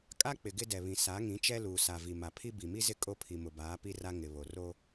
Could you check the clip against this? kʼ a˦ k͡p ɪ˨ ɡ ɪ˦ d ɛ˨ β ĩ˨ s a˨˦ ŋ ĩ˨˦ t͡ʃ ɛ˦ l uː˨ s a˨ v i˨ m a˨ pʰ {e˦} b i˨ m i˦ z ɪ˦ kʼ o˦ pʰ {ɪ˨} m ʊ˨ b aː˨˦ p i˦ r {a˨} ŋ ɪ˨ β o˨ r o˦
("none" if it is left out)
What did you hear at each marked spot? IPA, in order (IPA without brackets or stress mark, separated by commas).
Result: i˦, i˨, a˦